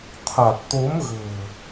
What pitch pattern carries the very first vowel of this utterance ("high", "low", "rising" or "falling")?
low